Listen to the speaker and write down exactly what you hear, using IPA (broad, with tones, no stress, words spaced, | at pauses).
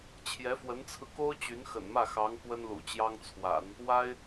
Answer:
t͡ɕʰjɛ˧˥fwə˧˥nt͡sʰɹ̩˧ko˥ʊ̯ t͡ɕy˧˥nxə̰˨˩nmä˥˩xɑ˧˥ŋ kwə˥nlṵ˨˩ t͡ɕjɑ˥ŋt͡sʰwa̰˨˩˦n | wa˥ɪ̯